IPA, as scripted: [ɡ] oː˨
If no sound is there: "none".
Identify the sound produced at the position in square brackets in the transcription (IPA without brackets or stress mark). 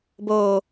b